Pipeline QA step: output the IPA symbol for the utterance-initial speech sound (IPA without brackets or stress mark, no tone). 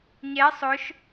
ɲ